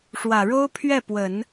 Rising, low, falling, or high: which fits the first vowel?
low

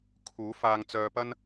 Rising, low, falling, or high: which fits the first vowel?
rising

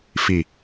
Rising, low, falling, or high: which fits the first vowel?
low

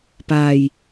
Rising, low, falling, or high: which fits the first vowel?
low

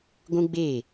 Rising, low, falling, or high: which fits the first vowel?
high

